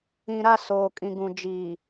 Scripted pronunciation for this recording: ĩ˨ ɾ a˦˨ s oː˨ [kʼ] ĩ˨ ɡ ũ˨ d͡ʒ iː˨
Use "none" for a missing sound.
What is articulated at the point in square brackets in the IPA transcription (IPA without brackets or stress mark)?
kʼ